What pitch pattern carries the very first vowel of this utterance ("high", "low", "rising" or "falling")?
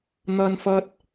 high